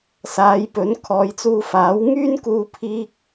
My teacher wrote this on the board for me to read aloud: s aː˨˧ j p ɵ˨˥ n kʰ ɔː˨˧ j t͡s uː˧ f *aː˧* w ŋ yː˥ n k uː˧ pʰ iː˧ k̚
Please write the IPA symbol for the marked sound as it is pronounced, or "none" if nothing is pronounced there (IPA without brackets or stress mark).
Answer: aː˨˥